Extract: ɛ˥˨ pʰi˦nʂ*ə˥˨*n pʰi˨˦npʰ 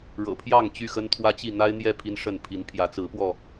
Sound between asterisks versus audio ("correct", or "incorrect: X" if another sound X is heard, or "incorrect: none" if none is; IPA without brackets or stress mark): correct